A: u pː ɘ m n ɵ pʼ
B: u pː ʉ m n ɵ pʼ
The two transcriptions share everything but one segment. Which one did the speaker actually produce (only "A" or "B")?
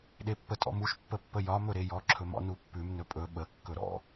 B